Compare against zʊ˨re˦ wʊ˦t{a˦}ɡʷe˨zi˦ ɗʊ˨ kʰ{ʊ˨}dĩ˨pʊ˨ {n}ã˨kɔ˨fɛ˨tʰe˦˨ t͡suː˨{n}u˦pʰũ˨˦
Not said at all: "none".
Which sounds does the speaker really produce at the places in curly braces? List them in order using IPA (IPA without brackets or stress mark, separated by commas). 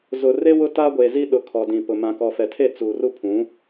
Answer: a˦, ɔ˨, m, r